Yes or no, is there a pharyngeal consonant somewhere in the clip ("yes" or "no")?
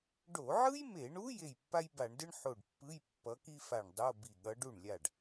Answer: yes